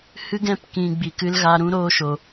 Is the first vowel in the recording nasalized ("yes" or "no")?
no